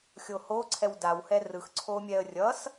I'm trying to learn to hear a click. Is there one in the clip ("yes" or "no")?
yes